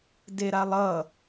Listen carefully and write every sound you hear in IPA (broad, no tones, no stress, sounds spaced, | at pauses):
d e ɾ a lˠ ʌ